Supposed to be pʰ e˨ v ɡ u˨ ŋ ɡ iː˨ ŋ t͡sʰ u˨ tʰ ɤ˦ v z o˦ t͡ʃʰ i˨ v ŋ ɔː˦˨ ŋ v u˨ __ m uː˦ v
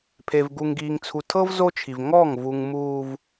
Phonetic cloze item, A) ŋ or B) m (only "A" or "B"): A